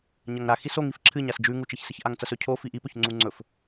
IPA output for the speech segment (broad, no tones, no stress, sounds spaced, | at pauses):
ɲ ɐ ŋ ɾ a x i s o ŋ i f ǁʰ ɨ ɲ a s d͡ʒ ʉ ŋ u t͡ʃ e ç s ɨ ç ʔ a ŋ t͡s ɐ s ɵ cʰ o f i ʔ i p ɵ ç ŋ͡ǀ u ŋ͡ǀ ɵ f